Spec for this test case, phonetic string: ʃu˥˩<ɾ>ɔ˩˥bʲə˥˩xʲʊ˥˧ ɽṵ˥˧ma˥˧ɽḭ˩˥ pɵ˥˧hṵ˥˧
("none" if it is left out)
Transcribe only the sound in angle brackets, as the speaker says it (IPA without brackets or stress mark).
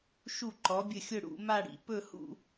ǃ